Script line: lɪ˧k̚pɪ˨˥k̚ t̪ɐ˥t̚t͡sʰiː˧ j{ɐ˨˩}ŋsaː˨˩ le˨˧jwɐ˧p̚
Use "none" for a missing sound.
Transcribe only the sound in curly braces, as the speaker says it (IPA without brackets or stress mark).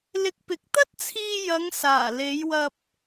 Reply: ɐ˨˧